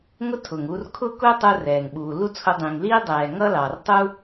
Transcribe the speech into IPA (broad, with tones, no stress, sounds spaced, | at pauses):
ŋ ʊ˥ tʰ ʊː˩ ŋ uː˧ r kʰ ʊː˥ k ʊː˥ tˤ u˧ r ɛː˩ ŋ ɓ uː˩ l u˥ t͡sʰ ʊ˧ dˤ ĩ˩ ŋ l iː˥ dˤ ɛː˩ ŋ ʌ˥ l ɑ˩ r tˤ u˥